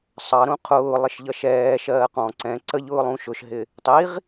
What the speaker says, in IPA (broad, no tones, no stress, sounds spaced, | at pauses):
sˤ ɑ ɾ ũ qʰ ʊː lˠ ɪ ʃ ʎ ʌ ʃ ɛː ʃ ɜː q ɔ̃ ǀ ɛ̃ ǀ ə ʎ ʊː lˠ ũ ʃ ʊ ʃ ɦ ɪ | tˤ i ʁ